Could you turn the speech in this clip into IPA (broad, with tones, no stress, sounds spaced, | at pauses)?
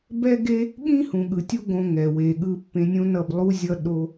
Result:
b ɛ˦ ɡ e˦ | ɠ ĩ˦ h ũ˨ ɠ ɯ˨ tʲ u˦ ɡ õ˧ ŋ ɛ˨ w e˨ ɠ ɯ˧ pː ẽ˧ nʲ õ˦ n ʌ˦˨ b lˠ u˦ zʲ ʌ˦ ɗ o˦